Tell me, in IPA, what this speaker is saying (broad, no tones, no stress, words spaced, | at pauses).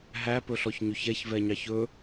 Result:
ɦæpɵɬɔçɲɵç ɛçvɛɲɑç ɵ